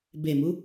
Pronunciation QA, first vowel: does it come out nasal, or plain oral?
oral